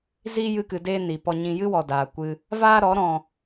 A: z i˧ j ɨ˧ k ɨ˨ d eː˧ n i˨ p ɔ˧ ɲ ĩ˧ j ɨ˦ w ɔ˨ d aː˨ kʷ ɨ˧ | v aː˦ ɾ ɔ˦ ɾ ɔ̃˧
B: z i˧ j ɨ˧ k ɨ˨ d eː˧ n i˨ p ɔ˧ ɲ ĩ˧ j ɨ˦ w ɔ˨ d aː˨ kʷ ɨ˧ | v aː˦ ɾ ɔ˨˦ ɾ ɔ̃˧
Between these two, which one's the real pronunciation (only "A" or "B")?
B